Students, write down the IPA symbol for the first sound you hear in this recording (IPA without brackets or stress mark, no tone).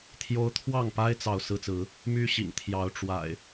t̪ʰ